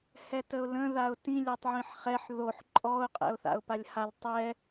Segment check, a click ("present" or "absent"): present